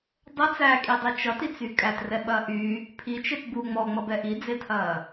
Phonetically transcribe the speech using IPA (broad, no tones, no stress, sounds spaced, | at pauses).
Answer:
dˤ ɛ t͡s æ kʼ i dˤ e t͡ʃ ʌ t i t͡s y kʼ æ t r ɛ ɓ ɐː ʔ y | pʰ i t͡ʃ e t b u ŋ͡m ɔ ŋ͡m ʌ b ɛ ʔ i d͡z e tʰ ɐː